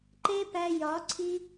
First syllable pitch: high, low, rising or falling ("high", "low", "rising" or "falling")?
high